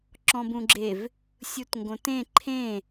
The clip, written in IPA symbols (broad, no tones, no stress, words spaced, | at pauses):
ǁɔ̃bũɡ͡ǁev | sʲutŋɡõtẽ ǃʰẽ